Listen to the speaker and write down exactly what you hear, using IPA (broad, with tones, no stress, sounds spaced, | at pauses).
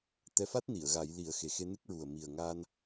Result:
t̪ ɛ˧˥ f a˦˥ t̚ n i˨˩˨ ə̯ ɣ a˨˩˦ j l i˨˩˦ ə̯ x e˨˩ x e˧ n ɨ˦˥ k̚ ɹ u˨˩ ə̯ m i˨˩ ə̯ ŋ aː˧ n